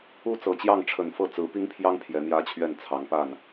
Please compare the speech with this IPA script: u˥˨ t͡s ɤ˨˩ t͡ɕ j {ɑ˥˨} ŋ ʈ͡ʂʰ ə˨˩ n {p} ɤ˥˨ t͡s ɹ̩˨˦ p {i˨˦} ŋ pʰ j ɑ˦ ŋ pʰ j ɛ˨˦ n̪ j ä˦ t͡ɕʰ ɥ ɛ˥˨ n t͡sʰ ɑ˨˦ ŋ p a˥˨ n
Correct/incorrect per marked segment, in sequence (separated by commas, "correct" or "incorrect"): correct, incorrect, incorrect